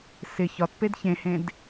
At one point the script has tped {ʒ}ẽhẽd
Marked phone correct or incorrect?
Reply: incorrect